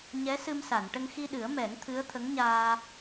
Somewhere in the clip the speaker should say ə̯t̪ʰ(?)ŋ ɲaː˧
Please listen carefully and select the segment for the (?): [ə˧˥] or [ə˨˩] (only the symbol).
ə˧˥